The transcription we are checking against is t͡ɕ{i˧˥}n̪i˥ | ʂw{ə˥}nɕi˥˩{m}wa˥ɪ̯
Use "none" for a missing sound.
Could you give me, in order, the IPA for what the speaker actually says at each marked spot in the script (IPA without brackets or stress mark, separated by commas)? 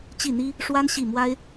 i˥˩, a˥, m